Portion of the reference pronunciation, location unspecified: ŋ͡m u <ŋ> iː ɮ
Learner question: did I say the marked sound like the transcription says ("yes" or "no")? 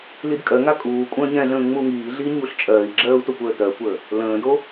yes